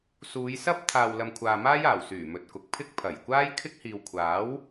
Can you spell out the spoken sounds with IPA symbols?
suː˨˧jsɐ˥p̚ t̪ʰaː˨wlɐ˨mkʷʰaː˨ maː˥jaː˨˩wsyː˨˩ mɵ˨t̚kʊ˨k̚ pʰɪ˥k̚ pʰɐ˨˩jkʷaː˥jkʰɪ˥k̚ hiː˨wkʷʰaː˨˥w

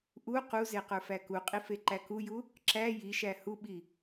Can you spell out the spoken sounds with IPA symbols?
ʔu quze qə˞fækuqʼi feǃækuju | ǁæ jiʃæ huɓi

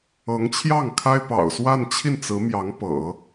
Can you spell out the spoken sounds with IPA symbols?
ɤ˧˥ŋt͡ɕʰjɑ˥˩ŋkʰa˥ɪ̯pɑ̰˨˩ʊ̯ swa˥˧nt͡ɕʰi˥˩nt͡sɹ̩˧˥mjɑ˧˥ŋ pɤ̰˨˩˦

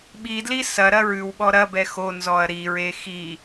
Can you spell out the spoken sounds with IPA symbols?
ɓidli sɐ ɾɐɹʉwɓɔ ɾɐbɛ xonzɔɐ̯ ɾiɹe xi

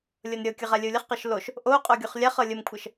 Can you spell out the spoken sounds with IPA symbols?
lʲɤnɾʲɤkʲə ʁalʲəu̯lʲəχqɤʃ loʃ | ʔoqʼo ɡʲoχlʲaχɤ lʲəmkʷʰɤʃ

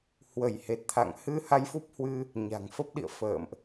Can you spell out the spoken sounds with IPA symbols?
hwə˧˩jhe˨˩t̚t̪ʰa̰˧˨ŋ hɨ˧ ha˧jfu˦˥p̚hwɨ˧ | ɲa̤˨˩ŋfə˦˥p̚ɗḭ˧˨ə̯fə̰ː˧˨mʔ

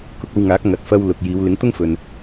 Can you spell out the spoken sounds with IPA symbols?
kʊ˧k̚ɐ˧wŋaː˨˥k̚ ŋɐ˨t̚fɐ˧w lʊ˨k̚jiː˨˧w lɪ˨˥ŋt̪ʊ˥ŋfɵ˨n

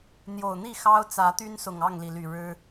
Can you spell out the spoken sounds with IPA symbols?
n̪jo˨˩ʊ̯n̪i˥˨ xɑ˦ʊ̯ t͡sä˨˦t̪y˦n sʊ˨˩ŋ ɑ˥˨ŋli˩ly˨˩ ɻɻ̩˦

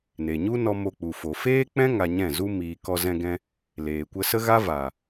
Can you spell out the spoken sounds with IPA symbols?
ne˨ɲu˦ nɔ˧ mo˧k͡pu˨fo˨ feː˦k͡pɛ̃˦ ŋa˧ɲɛ̃˦˨zu˦ miː˧ kɔ˧zɛ̃˧ɡɛ̃˧ | leː˨ kʷə˧sə˦ɣa˦ va˨

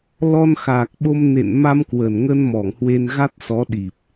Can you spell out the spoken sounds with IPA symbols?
lɔ˧nxaː˨˩k̚ɓo˧m nḛ˧˨n ma˧mkwə˨˩nŋə˧n mɔ˧˩ŋhwe˧n ɣa˦˥t̚sɔ˨˦ ɗi˨˩p̚

